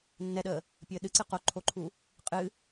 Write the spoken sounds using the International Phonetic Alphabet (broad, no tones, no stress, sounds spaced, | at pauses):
nː ɛ ɗ əː | pʲ əː ɗ ɨ ǀ ɨ q o ǃʰ o ǃʰ u | qʼ ɨ